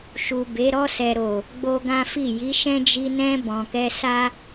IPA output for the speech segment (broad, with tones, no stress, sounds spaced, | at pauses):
ʃ u˨ b e˨˦ ɾ ɔ˧ s ɛ˨ ɾ o˨ | ɡ͡b o˦ ɡ ã˦ f i˦˨ j i˨˦ ʃ ɛ̃˦ d͡ʒ i˧ n ɛ̃˧ b ɔ̃˨ k ɛ˧ s a˦